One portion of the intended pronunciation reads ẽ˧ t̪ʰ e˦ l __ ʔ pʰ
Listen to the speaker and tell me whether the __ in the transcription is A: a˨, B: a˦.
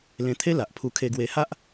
A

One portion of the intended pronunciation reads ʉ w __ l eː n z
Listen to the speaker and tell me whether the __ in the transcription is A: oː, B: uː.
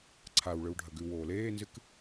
A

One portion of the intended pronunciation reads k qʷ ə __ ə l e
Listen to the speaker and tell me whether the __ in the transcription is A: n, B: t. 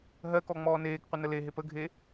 A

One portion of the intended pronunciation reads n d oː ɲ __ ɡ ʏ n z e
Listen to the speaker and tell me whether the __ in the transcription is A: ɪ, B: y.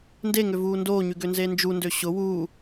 B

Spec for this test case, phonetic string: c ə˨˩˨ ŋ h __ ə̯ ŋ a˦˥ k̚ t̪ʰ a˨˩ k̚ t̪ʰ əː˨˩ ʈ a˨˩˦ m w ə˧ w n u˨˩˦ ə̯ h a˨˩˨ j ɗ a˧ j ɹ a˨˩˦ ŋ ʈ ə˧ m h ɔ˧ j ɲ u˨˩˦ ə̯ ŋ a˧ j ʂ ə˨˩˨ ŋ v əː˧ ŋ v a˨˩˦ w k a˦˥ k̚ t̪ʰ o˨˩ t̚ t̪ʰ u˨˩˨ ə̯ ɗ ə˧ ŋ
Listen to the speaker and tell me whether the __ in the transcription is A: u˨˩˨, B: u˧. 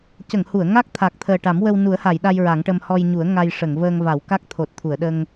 A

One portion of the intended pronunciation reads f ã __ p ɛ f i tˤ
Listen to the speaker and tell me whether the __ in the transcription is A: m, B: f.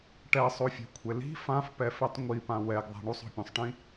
B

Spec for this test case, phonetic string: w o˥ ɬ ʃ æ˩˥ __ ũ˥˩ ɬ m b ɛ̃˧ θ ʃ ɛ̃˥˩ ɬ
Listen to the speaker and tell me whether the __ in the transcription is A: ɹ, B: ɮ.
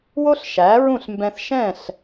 A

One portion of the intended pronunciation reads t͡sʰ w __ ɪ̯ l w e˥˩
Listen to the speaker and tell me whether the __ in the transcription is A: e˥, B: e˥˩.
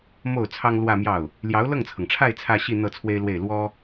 A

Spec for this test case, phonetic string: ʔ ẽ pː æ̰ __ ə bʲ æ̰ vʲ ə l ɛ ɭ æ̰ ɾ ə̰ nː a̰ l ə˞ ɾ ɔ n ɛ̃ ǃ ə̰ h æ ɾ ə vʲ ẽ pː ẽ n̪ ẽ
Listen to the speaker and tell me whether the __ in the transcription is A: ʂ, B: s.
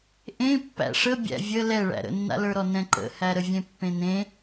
A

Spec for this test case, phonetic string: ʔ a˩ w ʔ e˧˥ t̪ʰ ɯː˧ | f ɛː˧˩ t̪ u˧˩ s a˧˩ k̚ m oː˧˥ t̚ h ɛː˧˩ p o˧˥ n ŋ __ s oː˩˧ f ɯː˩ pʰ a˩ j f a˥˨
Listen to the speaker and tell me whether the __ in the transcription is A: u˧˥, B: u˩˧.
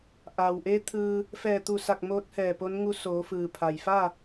A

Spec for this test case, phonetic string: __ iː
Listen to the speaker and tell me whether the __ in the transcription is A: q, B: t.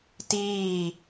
B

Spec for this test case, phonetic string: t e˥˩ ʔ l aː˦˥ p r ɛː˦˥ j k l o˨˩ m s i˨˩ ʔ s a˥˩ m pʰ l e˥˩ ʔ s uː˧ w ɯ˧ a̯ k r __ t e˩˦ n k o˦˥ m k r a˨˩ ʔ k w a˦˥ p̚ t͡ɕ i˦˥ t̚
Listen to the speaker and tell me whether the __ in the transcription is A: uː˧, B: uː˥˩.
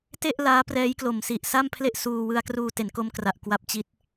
A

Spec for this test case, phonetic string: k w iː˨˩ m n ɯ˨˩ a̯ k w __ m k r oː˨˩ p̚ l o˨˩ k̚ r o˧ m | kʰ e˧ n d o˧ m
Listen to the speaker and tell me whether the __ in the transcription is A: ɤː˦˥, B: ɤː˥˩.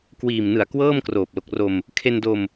B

